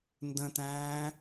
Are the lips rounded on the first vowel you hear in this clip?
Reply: no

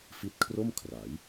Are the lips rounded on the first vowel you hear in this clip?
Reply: no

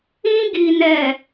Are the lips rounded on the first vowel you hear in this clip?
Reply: no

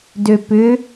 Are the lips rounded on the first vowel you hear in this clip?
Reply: yes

